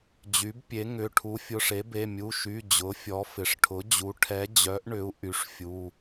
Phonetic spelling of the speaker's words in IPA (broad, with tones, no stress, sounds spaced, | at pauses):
d͡ʑ y˩˥ b pʲ e˩˥ ŋ ʏ˩˧˩ ʈʰ u˩˥ fʲ ʊ˩˧˩ ʂ e˩˥ b e˩˧˩ mʲ u˩˧˩ ʃ y˩˧˩ d͡ʑ ʊ˩˥ fʲ ɔ˩˥ f ɪ˩˧˩ ʂ ʈʰ ʊ˩˥ d͡ʑ u˩˥ ʈʰ ɛ˩˥ d͡ʑ œ˩˥ ʔ ɳ ʏ˩˥ u̯ ʔ y˩˥ ʂ fʲ u˩˧˩